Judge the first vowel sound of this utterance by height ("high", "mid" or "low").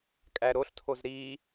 low